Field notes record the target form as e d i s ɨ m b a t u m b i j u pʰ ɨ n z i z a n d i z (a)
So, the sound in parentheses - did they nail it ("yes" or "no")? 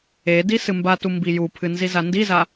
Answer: yes